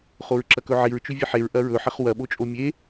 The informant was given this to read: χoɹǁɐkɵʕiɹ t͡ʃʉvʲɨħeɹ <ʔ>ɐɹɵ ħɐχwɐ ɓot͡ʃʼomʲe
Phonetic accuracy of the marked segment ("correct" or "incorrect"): correct